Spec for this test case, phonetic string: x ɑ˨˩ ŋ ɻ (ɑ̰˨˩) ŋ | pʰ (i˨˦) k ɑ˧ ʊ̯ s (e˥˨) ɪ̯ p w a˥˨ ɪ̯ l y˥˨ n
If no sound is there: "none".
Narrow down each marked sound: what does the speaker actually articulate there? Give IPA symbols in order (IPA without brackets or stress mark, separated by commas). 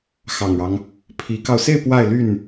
ɑ˦, i˨˦, e˥˨